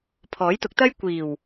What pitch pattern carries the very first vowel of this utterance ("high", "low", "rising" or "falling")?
rising